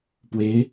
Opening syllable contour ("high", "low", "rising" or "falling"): rising